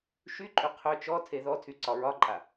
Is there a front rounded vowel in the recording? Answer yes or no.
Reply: yes